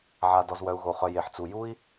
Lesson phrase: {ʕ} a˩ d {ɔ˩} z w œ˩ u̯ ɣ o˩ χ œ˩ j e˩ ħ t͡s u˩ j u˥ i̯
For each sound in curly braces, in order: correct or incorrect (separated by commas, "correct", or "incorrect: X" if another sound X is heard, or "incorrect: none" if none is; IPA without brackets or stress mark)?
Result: correct, correct